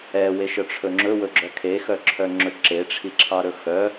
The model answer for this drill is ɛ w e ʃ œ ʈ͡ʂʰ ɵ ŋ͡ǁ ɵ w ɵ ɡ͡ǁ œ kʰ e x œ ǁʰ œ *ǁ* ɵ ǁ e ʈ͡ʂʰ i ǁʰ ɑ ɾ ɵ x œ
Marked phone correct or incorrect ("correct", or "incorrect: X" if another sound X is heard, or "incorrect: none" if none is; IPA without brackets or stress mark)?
incorrect: ŋ͡ǁ